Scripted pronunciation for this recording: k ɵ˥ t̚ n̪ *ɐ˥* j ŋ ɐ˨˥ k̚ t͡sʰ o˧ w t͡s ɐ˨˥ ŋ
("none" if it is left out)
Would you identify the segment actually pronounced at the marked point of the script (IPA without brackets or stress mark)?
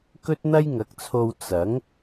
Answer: ɐ˥